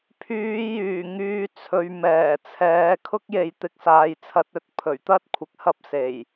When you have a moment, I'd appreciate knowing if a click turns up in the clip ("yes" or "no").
no